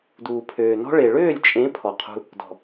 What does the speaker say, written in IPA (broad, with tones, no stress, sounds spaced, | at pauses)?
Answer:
d uː˨ pʰ øː˨ n ɔ̤˦ ɭ e˨ ɭ øː˦˨ lʲ t͡ʃʼ ẽ˨˦ pʰ ɔ˨ qʰ ṳ˧ | d ɔ̤˨